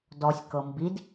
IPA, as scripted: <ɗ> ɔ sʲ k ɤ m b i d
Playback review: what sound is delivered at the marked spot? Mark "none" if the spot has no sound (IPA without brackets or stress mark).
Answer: d